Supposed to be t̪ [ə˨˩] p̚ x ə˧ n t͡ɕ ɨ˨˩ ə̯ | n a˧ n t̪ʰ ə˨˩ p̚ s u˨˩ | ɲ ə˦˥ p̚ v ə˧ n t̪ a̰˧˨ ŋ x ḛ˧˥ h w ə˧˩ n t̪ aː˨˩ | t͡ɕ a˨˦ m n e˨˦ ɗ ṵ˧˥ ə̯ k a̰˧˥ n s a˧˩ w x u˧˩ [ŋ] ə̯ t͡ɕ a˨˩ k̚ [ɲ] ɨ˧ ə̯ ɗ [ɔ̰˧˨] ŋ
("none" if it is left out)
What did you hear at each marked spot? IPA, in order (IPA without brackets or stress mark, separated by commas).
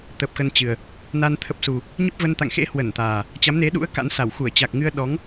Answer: ə˨˩, none, ŋ, ɔ˨˦